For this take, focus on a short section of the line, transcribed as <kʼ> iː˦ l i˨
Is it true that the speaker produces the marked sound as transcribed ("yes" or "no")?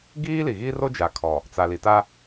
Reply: no